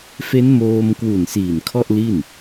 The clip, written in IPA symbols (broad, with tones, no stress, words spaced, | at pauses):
fe˦˥nmoː˧mkwu˨˩n siː˨˩n kʰɔ˥˩ʔli˥˩n